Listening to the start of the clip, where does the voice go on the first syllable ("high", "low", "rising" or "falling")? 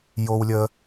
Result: high